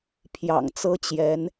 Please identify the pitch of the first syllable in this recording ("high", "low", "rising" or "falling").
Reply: low